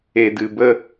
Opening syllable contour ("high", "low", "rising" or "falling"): low